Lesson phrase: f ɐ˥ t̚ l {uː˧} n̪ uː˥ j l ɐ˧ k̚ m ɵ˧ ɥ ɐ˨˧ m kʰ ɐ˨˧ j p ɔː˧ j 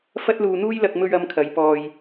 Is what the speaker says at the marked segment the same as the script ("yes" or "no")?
yes